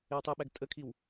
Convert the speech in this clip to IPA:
ɪ w tˤ i ɓ æ ɡ tʼ ə kʰ i w

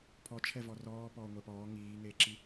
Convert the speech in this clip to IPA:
pʰ ɔ t͡ʃʰ ɛ v ɔ r ɔː p ɔː ŋʷ ɛ p ɔː ŋ iː ŋ eː ǁ i

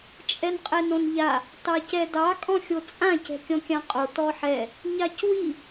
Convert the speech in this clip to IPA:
t͡ʃʼ ɛ n qʼ ɛ n õ n ʎ a | t ɑ c ɛ d ɑ kʼ ɔ̃ xʲ o t͡sʼ ã c ɛ̤ kʲ ɔ̃ kʲ ã qʼ o t ɔ ħ ɛ | ɲ ɑ c w i

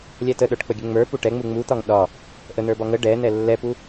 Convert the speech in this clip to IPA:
lʲ ɛ t ə ɗ ə˞ ʈ k͡p ə ɡʲ ə ŋ͡m ə˞ p u ʈ ɛ ŋ͡m u ŋ͡m u t̪ ɒ ŋ ɗ ɒ | ʔ ə n̪ ə˞ b ɒ ŋ ə ɖ ɛ n̪ ɛ lː ɛ p u

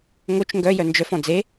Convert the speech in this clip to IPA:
ŋ o t͡ʃ ŋ ɡ œ j œ n d͡ʒ œ f ɔ̃ d͡z e

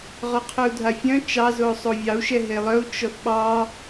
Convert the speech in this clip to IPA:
ʁ ɔ qʰ œ u̯ dʱ a fʲ œ̃ t͡ʃ ɑ z o sˤ o vʲ ɑ u̯ ʃ ɛ ɦ e lˠ œ u̯ t͡ʃ ɔ θ ɓ ɑ

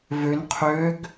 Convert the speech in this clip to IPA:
v ø n qʰ ø ɡ

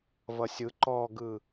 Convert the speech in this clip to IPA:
v ʌ sʲ ɯ ǃ ɔ ɡ ɯ

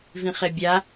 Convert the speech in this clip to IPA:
v ĩ χ e bʲ a

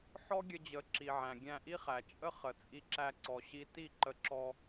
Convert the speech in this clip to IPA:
ħ ɔ˦ ɡʲ ə˧ d͡ʑ ə˨˦ ǁ i˨ ʕ æ̃˨ ɡʲ æ̃˧ ʔ i˦ χ æ˨ t͡ʃʼ ə˦ χ ə˨ t͡sʼ i˧ ǁ æ˧ ǀ ɔ˨ ɕ i˧ t i˦˨ ǃ ə˧ ǁ ɔ˧

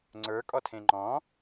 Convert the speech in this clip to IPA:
ŋ͡ǀ ə˞ kʼ ɔ tʰ ẽ ŋ͡ǃ ɔ̃

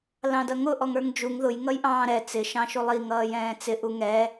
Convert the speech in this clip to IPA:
l ɑ̃ d ʌ ŋ ʊ ʔ ɔ ŋ ə˞ ŋ d͡ʒ u ŋ ð ʊ j ŋ ʌ j ʔ ɑ̃ː ɾ ɛ t͡s ɪ ʃ ɑ̃ ʃ u lˠ i ŋ ʌː j ɛ̃ː t͡s ɪ ʔ u ŋ ɛ

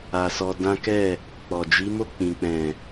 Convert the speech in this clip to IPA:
a˧ s ɔ˧ d ã˦ k ɛ˦˨ | k͡p ɔ˨ d͡ʒ i˨˦ m o˦˨ k͡p ĩ˨ k͡p ɛ̃˨

